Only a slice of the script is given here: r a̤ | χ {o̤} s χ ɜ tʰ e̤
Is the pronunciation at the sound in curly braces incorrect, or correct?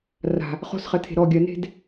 correct